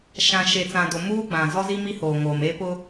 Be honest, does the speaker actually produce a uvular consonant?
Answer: no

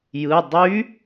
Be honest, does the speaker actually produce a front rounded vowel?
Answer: yes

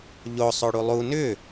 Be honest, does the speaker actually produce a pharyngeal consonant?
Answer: no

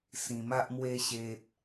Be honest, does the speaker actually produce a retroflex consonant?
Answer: no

